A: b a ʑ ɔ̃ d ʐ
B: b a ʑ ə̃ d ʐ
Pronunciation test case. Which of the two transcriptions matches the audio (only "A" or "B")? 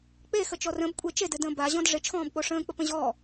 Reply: A